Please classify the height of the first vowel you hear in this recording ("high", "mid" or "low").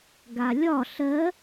low